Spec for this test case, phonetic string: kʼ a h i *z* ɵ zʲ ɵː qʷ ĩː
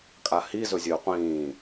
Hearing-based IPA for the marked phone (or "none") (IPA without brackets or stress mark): z